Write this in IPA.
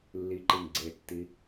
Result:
lː i ǃ i ŋ ɡ͡ǀ e tː i

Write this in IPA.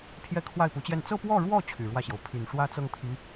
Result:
pʰ j ɛ˥˧ kʰ w a˥˩ ɪ̯ p u˧˥ t͡ɕ j ɛ˥˧ n t͡s ɤ˥˧ p w ɔ˥˧ ɻ w ɔ˥˩ t͡ɕʰ y˨˩ ɻ w ä˥˩ ɕ j o˩ ʊ̯ pʰ y˨˩ n ʂ w ä˥ t͡s ɤ˥˩ ŋ t̪ʰ i˧˥

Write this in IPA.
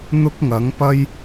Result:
n̪ ʊ˥ k̚ ŋ ɐ˨˥ ŋ p ɐ˥ j

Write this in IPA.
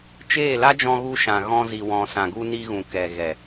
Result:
t͡ʃ eː˦˨ l a˦ d͡ʒ ɔ̃˧ ɣ u˧ ʃ ã˨ ɣ ɔ̃˧ z i˨ w ɔ̃˨ s ã˨ ɡ u˧ n i˧ ɣ ũ˨ k ɛ˨ ɣ ɛ˨

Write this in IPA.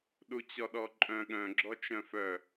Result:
ɗ u t͡ɕ ɔ ɗ ɔ ǃʼ œ̃ ɠ œ̃ ɡ͡ǁ ɔ t͡ʃ œ̃ f œ

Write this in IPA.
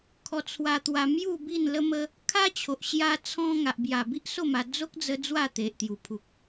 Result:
kʰ ɔ˧ t͡sʰ w a˧ t̪ w a˧ m j u˥˧ b i˥˧ n l ə˦ m ə˦ | kʰ a˦ t͡ɕʰ o˨ ʔ ɕ j a˧ t͡sʰ ɔ̃˧ ŋ a˨ ʔ b j a˨˩ b i˦ ʔ s o˥˧ m a˧ d͡z o˦ k̚ d͡z ə˧ d͡z w a˥˧ t̪ e˨ ʔ t̪ j u˨˩ pʰ u˨ k̚

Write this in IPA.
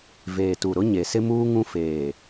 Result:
v eː˨ t u˨ ɾ ʊ˦ ɲ e˨ s ɪ˦ m uː˦ ŋ ũ˦ f eː˨

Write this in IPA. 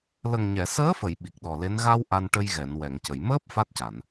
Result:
l ə˨˩ ŋ ɲ ɛ˨˩˨ s əː˧˥ f ə˨˩˨ j ɓ i˨˩ k̚ ɗ ɔ˨˩ l e˧˥ n ɣ a˧ w ʔ a˧ n ʈ ə˧ j ɣ ɛ˨˩˨ n w ɛ˨˩˨ ŋ c ə˨˩˨ j m əː˦˥ p̚ f a˦˥ t̚ c a˨˩˨ n

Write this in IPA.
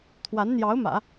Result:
t̪ʰ w a˧˥ n n̪ j ɑ˧˥ ʊ̯ m ä̰˨˩˦

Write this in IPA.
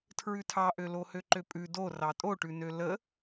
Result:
tʰ ɹ ʉ tʰ ɑ ʔ ø l o h ø ǃ ø pʼ ʉ d o r ɑ tʼ o ʈ ʉ n ø l ə

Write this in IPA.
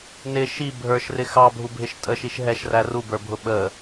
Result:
n ɪ ʃ i bʱ ə˞ ʃ r ɪ x ɑ bʱ u bʱ ɪ ʃ tʼ ə ʃ i ʃ ɦ ɛ ʃ r æ r u b ə˞ bʱ ʊ ɓ ə

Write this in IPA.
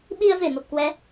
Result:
ɓ i˧ ə̯ v e˧˩ m ə˨˩ p̚ k w ɛ˨˦

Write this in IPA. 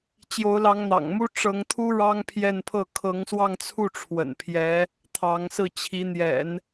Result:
t͡ɕ j o˧˥ ʊ̯ l ɑ˧˥ ŋ n̪ ɑ̰˨˩ ŋ m u˥ ʈ͡ʂ ɤ˧˥ ŋ t̪ʰ u˥ ɻ ɑ˥ ŋ pʰ j ɛ˥˧ n pʰ ɤ˥˩ kʰ ɤ˧˥ ŋ s w ɑ˥˧ ŋ t͡sʰ u˥˩ ʈ͡ʂʰ w ə̰˨˩ n pʰ j ɛ˧˥ | t̪ʰ ɑ˧˥ ŋ s ɹ̩˥˩ t͡ɕʰ i˧˥ n̪ j ɛ̰˨˩˦ n

